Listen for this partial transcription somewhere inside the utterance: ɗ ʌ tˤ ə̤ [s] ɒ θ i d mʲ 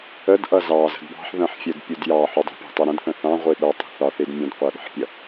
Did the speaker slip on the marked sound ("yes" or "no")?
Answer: yes